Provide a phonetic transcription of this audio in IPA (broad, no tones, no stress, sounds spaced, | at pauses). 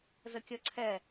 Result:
z ə kʲ ə ǀʰ ɛ